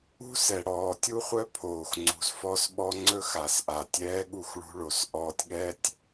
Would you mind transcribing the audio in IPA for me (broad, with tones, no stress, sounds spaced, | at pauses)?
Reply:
ṳ˦ s ɛ˨ ɽ ɔː˨ tʲ u˦ χʷ œ˦ pʰ oː˨ x ŋ͡ǀ ṳ˨ z f ɔ˦ s ɓ ɔ˦ ŋ͡ǀ ɵ˦ x a˨ s ʔ a˨ tʲ ɛː˦ ɠ u˦˨ x ɭ ṳ˦ ɭ o˨ s ʔ ɔː˦ tʲ ɠ ɛ˦ tʲ